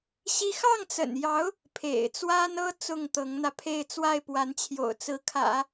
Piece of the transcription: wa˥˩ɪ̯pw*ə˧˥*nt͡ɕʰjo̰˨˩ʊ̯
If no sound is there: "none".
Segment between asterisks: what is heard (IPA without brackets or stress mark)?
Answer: a˧˥